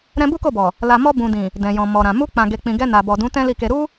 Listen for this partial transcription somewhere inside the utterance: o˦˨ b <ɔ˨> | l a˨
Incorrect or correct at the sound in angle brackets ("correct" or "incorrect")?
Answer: correct